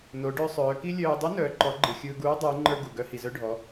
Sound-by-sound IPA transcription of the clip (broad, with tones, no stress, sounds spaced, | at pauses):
n o˩˧ ɖ œ˧ sˤ œː˩˧ k i˥ lʲ œː˧ dˤ u˧˥ n œː˩˧ ǃ ɔ˩˧ ɡ͡ǃ ɯ˩ xʲ ɯː˧ ɡ uː˧˥ dˤ ɯː˩˧ ŋ͡ǃ ə˞˧ ɡ u˩ ɡ œ˧ h i˩ z œ˧ ɖʱ ɔ˩˧